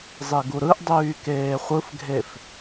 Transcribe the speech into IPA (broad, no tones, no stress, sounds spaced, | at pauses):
zˤ e ɡ u ɾ ɯ ʔ dˤ yː k eː χʷ ɯ f ɡʱ e f